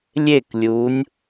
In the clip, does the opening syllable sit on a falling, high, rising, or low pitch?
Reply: falling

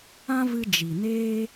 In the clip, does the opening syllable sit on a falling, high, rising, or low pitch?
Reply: high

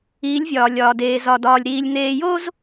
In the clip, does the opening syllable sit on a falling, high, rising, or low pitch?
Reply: rising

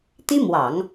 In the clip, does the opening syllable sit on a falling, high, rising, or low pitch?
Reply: high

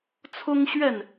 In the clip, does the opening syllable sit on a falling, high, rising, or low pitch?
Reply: high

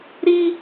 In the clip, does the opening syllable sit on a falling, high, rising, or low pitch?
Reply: high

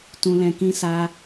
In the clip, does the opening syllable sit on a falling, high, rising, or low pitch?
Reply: high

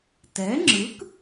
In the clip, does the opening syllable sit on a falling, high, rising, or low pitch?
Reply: rising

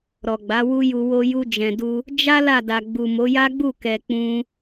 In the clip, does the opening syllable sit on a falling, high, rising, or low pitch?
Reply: low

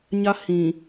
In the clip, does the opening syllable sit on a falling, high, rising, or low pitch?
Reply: high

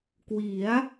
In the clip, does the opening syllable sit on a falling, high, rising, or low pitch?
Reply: rising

